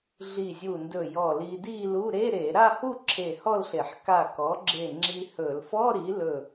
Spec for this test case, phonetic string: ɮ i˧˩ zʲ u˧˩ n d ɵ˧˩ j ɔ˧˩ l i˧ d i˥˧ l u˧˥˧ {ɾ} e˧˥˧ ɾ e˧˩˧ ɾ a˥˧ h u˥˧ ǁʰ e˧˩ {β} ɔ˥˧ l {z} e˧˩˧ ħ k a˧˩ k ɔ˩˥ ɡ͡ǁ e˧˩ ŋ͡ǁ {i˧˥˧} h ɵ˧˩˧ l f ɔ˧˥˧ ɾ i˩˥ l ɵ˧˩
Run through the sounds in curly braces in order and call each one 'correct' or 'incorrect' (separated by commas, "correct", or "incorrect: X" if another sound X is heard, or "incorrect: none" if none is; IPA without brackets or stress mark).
correct, incorrect: h, incorrect: ɬ, incorrect: i˧